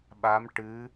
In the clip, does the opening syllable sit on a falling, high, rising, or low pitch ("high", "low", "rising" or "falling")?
rising